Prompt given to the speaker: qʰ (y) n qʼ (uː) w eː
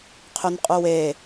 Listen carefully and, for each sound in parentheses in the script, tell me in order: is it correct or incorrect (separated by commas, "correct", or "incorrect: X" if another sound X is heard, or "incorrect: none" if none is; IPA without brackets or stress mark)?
correct, incorrect: u